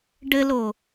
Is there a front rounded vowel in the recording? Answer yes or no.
no